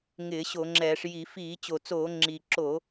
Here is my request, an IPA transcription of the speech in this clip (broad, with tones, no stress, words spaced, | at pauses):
ŋɪː˧˩˧ ɕo˧˩˧ŋ͡ǁɛː˧˩˧ʂ ji˧˩˧ fiː˧˩˧t͡ɕo˨˩t͡soː˧˩˧ ŋ͡ǁi˨˩ ǁo˧˩˧